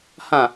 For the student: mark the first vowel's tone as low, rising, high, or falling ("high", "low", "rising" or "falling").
falling